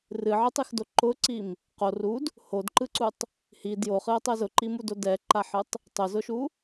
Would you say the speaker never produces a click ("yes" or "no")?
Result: no